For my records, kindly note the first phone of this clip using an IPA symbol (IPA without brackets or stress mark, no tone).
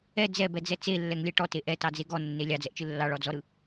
ɛ